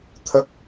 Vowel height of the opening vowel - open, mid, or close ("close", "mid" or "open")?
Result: mid